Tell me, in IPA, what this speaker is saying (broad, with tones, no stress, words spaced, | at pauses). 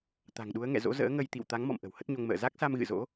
t̪a̤˨˩ŋɗu˨˦ə̯ŋɛ̰˧˨ zo̰˧˥zə̰ː˧˥ŋə˧jt̪ḭ˧˨w t̪a˨˦ŋmɔ̰˧˨m ʔə̤˨˩whə˦˥t̚ɲo˧ŋmə̰ː˧˨ za˦˥k̚ sa˧m ɣɨ̰˧˨zo̰˧˥